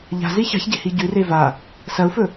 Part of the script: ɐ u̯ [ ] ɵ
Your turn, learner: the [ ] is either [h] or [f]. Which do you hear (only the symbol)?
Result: f